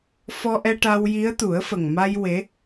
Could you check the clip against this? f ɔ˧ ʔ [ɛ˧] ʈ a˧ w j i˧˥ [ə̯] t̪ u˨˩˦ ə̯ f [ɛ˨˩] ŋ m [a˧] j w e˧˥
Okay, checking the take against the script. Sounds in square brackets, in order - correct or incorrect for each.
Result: correct, correct, incorrect: ə˨˩, correct

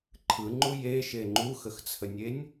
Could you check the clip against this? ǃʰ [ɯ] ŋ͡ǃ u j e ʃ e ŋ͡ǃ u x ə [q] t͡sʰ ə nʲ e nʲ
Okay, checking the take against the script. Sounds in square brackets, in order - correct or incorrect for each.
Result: correct, incorrect: x

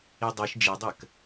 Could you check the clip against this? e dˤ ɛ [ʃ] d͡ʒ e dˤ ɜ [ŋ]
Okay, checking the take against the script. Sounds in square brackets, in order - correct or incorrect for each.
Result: correct, incorrect: k

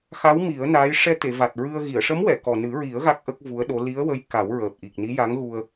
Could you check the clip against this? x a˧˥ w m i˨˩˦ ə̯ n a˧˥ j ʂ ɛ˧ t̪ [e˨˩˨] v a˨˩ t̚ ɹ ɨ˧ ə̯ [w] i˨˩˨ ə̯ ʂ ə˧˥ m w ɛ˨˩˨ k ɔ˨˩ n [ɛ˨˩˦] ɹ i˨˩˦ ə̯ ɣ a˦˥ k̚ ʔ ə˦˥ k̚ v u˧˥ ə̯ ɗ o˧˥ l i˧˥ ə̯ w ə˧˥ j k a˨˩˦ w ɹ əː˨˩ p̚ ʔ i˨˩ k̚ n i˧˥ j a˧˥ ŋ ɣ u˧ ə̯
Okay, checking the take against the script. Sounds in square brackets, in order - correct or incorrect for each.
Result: correct, incorrect: ɣ, incorrect: ɨ˨˩˦

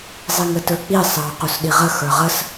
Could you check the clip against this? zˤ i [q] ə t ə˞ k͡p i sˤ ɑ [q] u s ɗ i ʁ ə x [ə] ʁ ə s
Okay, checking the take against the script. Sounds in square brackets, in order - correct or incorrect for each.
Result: incorrect: ŋ, correct, incorrect: ə˞

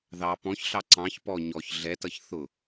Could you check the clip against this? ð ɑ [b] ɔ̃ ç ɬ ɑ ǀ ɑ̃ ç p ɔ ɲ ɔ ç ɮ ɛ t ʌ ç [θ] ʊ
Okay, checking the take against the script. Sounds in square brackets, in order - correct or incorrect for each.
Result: incorrect: p, correct

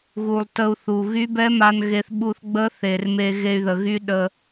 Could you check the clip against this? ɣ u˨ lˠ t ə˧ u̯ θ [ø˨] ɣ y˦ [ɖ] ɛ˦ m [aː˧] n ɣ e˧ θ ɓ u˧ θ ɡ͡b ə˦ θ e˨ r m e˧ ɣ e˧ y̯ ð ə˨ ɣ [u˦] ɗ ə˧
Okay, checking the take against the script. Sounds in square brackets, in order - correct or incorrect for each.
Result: incorrect: u˨, incorrect: b, incorrect: a˧, incorrect: y˦

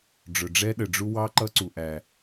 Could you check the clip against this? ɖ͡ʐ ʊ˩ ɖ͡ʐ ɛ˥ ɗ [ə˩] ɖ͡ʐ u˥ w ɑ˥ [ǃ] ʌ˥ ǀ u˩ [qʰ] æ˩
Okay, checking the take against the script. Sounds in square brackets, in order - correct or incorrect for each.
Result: correct, correct, incorrect: ʔ

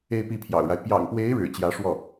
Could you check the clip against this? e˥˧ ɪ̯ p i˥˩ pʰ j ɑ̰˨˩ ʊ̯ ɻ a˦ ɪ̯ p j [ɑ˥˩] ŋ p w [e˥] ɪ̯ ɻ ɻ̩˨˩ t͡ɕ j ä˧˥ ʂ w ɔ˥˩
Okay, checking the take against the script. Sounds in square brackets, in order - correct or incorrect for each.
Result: incorrect: ɑ̰˨˩, incorrect: e˧˥

